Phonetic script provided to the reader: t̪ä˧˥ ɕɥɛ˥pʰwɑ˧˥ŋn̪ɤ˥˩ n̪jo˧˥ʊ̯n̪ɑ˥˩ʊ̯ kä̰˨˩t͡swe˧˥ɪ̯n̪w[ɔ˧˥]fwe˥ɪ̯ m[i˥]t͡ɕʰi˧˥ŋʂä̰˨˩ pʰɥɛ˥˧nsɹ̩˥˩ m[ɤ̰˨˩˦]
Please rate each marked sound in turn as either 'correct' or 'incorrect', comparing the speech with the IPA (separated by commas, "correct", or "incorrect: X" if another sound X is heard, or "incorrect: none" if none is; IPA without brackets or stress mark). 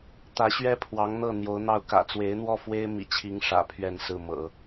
incorrect: ɔ˥˩, incorrect: ḭ˨˩, correct